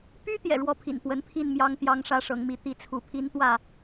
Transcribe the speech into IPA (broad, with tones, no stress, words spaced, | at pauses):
py˦ t̪jɛ̰˨˩ɻwɔ˥˨pʰḭ˨˩n pwə˨˦npʰi˥˨nmjɑ˦ŋ t̪jɑ˨˦ŋ ʂä˦ʂɤ˨˦ŋmi˨˦ t̪i˨˦t͡sʰu˨˦pʰi˦nt̪wä˥˨